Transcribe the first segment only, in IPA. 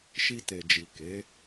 ʃ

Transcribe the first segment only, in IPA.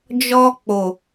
d͡ʒ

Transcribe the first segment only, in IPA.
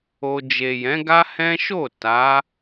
o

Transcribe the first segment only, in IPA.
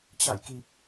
t͡ɕ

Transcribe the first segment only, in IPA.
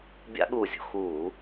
bʲ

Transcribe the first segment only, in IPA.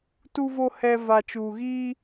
t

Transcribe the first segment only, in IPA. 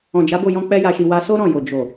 ɔ̃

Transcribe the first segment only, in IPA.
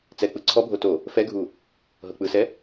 t͡s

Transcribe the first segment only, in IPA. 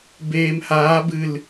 b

